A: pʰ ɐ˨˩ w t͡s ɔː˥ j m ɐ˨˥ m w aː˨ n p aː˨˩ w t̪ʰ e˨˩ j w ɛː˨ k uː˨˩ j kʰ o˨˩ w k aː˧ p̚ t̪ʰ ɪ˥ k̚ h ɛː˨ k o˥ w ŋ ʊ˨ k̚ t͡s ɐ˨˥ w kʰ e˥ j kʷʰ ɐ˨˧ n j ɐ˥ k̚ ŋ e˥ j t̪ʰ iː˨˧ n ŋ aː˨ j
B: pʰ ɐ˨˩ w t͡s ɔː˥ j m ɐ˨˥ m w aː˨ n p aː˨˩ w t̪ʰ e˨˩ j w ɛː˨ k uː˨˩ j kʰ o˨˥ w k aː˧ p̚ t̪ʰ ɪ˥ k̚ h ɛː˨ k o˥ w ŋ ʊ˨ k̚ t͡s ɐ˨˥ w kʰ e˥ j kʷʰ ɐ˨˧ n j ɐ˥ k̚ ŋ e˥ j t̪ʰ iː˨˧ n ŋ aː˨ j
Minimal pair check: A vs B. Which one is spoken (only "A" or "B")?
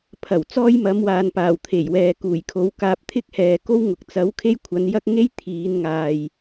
B